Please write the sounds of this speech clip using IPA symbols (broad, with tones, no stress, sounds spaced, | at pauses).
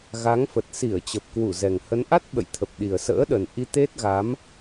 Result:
ɣ a˨˦ ŋ f ə˨˩ t̚ s i˧˩ ə̯ t͡ɕ ə˨˩ p̚ k w u˧˩ z ɛ˨˩ ŋ h ə˨˦ n ʔ a˦˥ t̚ ɓ ə̰˧˨ j t̪ʰ ə˨˩ p̚ ɗ i˨˩ ə̯ s ə̰ː˧˥ ɗ ə˨˩ n ʔ i˧ t̪ e˦˥ t̚ ɣ a˨˦ m